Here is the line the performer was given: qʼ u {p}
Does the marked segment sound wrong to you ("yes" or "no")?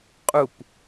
no